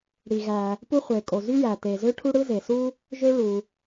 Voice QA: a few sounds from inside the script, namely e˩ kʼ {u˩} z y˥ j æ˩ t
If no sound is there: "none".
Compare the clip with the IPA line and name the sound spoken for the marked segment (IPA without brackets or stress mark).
o˩